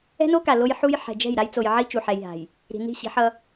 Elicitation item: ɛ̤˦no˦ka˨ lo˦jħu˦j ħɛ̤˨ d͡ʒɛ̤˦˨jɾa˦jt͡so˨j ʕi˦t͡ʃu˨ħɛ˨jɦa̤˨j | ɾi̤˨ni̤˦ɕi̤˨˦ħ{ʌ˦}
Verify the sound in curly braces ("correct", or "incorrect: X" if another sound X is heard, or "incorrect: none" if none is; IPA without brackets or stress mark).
correct